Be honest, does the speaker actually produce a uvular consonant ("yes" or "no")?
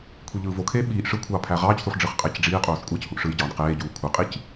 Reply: yes